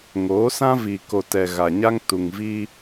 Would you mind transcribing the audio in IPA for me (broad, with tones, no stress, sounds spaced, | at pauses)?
ŋ oː˨˦ s ã˦ v i˨ k o˨ t ɛ˨ ɣ a˨ ɲ a˦ ŋ t u˨ ŋ v i˦